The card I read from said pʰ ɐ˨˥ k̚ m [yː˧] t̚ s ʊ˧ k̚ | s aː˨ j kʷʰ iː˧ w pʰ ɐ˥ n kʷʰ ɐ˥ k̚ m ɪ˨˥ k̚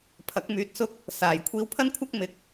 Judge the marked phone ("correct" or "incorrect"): incorrect